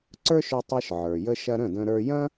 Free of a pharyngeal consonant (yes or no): no